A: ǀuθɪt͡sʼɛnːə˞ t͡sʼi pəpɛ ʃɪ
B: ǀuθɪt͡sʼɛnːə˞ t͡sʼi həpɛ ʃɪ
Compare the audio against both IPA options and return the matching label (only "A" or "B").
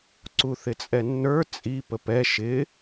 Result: A